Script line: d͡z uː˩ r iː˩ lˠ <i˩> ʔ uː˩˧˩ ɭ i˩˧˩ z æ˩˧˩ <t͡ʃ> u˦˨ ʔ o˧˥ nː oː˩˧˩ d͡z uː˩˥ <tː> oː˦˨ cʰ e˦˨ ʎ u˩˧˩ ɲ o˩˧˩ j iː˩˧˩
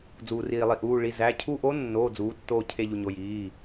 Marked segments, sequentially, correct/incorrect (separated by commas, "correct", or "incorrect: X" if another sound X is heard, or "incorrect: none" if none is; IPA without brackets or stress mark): correct, incorrect: cʰ, correct